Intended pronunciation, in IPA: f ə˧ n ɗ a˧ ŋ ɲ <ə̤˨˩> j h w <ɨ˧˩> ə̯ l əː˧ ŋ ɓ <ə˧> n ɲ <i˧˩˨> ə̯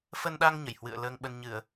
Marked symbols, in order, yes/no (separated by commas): no, no, yes, no